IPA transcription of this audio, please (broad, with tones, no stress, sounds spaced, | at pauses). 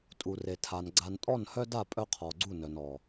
tʼ u˨ r e˨ tʰ a˨ n ɡ͡ǀ a˨ n tʼ ɔ˦˨ n h œ˦ d a˦˨ pʼ œ˦ qʰ ɔ˨ ɡ͡ǀ u˦˨ n œ˨ n ɔ˨